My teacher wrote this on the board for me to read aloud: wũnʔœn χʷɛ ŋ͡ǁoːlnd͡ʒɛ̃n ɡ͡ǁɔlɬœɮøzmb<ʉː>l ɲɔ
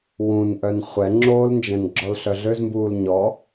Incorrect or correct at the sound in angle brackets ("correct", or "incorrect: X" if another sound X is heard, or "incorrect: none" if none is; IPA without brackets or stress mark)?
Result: incorrect: uː